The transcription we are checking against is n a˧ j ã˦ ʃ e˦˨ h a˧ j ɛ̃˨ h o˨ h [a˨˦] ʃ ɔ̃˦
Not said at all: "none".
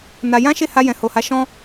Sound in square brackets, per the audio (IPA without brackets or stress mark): a˨˦